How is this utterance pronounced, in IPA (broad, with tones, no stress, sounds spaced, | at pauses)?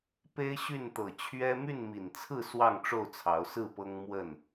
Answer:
p e˦ ɪ̯ ɕ y˥˨ n t̪ ɤ˨˩ t͡ɕʰ ɥ ɛ˦ m y˥˨ n m i˨˩ n t͡sʰ ɹ̩˥˨ s w ɑ˥˨ ŋ ʈ͡ʂ o˥˨ ʊ̯ t͡sʰ ɑ˨˦ ʊ̯ s ɹ̩˥˨ p ɤ˦ ŋ m w ə˥˨ n